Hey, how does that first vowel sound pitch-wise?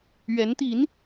rising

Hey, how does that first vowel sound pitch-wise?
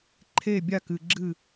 falling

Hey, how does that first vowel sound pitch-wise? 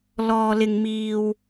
low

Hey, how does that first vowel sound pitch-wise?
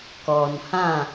low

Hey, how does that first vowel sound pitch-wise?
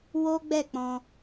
high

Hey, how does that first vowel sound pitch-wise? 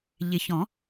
low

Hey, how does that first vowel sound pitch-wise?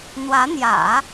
rising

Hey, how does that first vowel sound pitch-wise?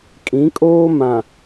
rising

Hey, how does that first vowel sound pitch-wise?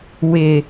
low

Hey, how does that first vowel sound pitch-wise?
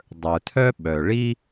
low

